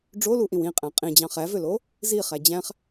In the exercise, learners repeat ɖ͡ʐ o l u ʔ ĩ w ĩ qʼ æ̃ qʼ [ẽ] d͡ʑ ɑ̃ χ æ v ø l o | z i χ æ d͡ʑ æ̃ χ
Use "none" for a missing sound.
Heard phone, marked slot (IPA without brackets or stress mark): ĩ